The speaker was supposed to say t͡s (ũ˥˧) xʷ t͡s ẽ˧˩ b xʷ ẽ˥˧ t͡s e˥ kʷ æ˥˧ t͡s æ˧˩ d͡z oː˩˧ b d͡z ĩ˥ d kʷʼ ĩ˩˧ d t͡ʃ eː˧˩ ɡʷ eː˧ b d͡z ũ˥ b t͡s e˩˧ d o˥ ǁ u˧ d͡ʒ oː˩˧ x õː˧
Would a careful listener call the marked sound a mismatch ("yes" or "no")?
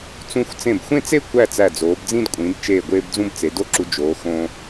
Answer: yes